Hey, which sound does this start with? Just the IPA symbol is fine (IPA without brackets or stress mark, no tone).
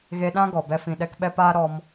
ɣ